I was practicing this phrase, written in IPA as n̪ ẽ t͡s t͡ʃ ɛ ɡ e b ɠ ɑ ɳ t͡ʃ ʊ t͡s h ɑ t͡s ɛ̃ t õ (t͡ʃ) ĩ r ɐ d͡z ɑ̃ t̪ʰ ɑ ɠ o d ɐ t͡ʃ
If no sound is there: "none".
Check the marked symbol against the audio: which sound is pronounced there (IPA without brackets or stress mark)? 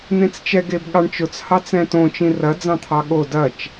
t͡ʃ